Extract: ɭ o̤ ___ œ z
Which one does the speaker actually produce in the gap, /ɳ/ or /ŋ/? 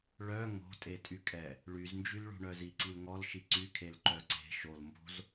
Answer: ɳ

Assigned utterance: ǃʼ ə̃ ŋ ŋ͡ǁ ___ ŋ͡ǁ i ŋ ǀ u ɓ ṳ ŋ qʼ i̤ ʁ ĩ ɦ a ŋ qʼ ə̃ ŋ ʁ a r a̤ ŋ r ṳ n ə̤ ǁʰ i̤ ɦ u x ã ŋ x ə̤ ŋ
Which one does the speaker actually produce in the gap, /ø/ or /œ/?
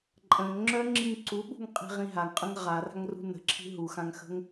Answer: œ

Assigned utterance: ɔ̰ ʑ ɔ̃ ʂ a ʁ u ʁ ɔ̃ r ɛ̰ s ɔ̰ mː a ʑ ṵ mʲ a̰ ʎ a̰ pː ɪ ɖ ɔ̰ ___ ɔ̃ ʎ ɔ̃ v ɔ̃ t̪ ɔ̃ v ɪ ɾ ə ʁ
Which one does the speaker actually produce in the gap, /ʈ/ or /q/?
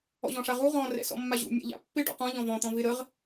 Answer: q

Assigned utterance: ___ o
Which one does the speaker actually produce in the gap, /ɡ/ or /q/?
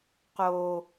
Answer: q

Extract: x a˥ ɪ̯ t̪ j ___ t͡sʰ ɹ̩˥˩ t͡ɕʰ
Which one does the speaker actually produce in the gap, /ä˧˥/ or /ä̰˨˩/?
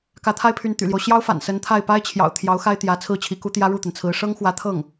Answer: ä˧˥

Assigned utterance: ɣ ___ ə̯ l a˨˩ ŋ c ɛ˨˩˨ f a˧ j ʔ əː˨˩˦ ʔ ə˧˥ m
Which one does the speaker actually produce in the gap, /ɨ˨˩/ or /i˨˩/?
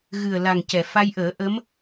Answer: ɨ˨˩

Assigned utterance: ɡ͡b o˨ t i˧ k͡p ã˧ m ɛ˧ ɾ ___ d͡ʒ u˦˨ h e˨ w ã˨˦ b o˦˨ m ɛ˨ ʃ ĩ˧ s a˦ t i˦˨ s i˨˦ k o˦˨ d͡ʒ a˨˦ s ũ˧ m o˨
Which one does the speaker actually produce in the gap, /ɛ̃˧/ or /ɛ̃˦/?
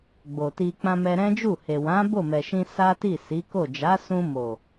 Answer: ɛ̃˦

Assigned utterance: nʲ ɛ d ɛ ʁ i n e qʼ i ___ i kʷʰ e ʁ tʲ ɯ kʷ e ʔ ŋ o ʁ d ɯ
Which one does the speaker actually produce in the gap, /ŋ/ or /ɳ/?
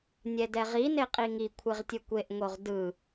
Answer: ŋ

